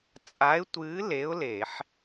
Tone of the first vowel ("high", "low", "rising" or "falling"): rising